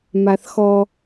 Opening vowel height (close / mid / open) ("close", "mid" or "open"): open